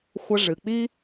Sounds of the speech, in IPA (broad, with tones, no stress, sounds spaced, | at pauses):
xʷ ɐ˧ ʐ ɨ˩ k͡p i˥